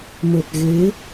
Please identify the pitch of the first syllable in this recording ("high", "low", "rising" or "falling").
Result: low